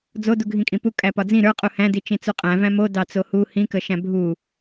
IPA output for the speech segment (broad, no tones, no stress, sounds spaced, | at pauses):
d͡z o d u ɡʱ ĩ kʼ ĩ p u kʼ æ p ɒ d͡z ĩ ɾ ə˞ qʼ u h æ̃ d i t͡ʃ ĩ t͡s u qʼ æ̃ v æ̃ m o d ɑ t͡s o h u h ĩ k ə ʃ æ̃ bʱ u